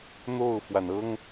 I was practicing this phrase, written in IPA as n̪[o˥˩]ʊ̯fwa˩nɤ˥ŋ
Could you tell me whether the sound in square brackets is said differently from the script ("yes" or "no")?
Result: no